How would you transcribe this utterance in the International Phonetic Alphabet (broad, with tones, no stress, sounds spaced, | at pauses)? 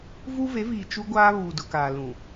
v u˦ v e˨˦ v iː˨ t͡ʃ u˦ ɡʷ aː˦ β uː˨ d ʊ˨ k aː˨ l ũ˨